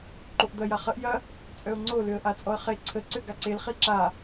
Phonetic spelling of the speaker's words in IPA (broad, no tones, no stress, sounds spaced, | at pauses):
ǃ o ʔ d̪ ɐ j a χ ə ʔ j ɐ | t͡sʼ œ ʊ̯ ŋ͡ǀ o l ø ə̯ ʔ a t͡sʼ ɔ ə̯ χ e ǀʰ ə ǀ ø ɡ a ǀ e l χ i ǁ a